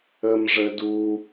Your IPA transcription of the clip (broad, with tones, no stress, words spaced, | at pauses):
ə˧mʐə˧du˧